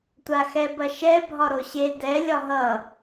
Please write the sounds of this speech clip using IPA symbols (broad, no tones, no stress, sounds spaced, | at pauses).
tʷ a x ɛ b ɐ ʃ ɛ bʱ ɒ ɾ o ɕ e d ɛ lʲ ɒ ɦ ʌ